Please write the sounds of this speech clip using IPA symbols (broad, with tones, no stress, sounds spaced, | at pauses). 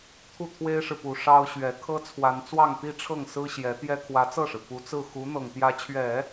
t̪ʰ u˥˩ t̪ʰ w e˥ ɪ̯ ʂ ɻ̩˨ p u˨˩ ʂ ɑ˥ ʊ̯ ɕ ɥ ɛ˧˥ kʰ ɤ˥ t͡sʰ w a˧˥ n t͡s w ɑ˥˧ ŋ t̪ i˥˧ ʈ͡ʂʰ ɤ˥˩ ŋ s ɹ̩˥ ɕ j ɛ˧˥ t̪ j ɛ˥ kʰ w ä˧˥ t͡s ɤ˥˩ ʂ ɻ̩˩ p u˧˥ t͡s ɹ̩˥˩ x u˧˥ n̪ ɤ˨˩ ŋ t̪ j ä˧˥ t͡ɕʰ ɥ ɛ˨˩˦